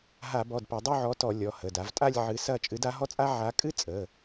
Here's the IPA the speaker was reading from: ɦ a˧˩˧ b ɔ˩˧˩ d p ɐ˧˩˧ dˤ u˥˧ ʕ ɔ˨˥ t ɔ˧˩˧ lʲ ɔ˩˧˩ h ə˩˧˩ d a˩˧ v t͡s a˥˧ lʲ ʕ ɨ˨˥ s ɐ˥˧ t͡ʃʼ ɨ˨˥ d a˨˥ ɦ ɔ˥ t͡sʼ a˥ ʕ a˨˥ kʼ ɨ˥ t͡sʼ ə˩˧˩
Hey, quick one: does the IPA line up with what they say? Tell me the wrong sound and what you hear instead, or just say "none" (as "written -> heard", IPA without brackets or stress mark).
t͡s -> tʼ